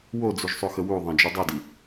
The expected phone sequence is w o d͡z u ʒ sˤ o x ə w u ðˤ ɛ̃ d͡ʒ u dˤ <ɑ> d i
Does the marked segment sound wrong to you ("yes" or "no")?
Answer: yes